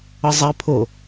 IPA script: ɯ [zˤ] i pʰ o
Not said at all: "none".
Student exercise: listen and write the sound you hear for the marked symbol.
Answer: zˤ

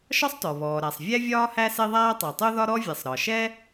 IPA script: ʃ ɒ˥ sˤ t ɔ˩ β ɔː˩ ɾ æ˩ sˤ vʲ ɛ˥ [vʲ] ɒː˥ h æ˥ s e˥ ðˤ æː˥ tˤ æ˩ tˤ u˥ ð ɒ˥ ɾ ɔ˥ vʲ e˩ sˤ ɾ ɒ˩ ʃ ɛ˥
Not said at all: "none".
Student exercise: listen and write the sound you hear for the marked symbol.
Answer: vʲ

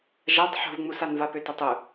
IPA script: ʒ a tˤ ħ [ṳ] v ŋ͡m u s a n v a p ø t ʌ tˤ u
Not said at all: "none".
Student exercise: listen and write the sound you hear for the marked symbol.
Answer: ṳ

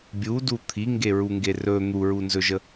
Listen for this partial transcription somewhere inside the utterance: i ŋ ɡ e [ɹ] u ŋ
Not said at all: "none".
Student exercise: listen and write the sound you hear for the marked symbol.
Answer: ɹ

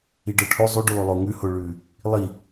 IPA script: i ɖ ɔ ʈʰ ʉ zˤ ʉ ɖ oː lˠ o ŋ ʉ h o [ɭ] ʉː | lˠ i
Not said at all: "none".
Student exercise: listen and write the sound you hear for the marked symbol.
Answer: ɭ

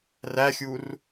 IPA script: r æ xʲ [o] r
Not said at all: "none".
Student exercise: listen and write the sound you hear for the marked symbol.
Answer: u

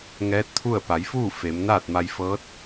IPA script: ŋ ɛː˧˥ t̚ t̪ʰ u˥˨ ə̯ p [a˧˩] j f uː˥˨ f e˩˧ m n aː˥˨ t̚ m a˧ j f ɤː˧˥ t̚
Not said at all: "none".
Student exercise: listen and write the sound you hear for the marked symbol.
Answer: a˩˧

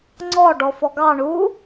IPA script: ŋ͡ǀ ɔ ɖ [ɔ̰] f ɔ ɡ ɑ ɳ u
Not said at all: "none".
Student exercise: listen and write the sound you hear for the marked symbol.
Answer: ɔ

